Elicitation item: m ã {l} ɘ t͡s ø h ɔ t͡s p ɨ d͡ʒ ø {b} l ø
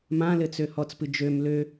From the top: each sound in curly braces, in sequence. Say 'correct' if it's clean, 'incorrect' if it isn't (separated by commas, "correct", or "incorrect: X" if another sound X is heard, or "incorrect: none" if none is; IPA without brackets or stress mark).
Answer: correct, incorrect: m